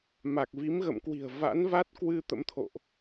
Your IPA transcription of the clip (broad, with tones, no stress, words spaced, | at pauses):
ma˨˩k̚vi˨˦mɣə̰˧˨mkwi̤˨˩ə̯ va̰˧˥nva˦˥t̚kwɨ˧ t̪ə̰˧˥mt̪ʰo̰˧˨ʔ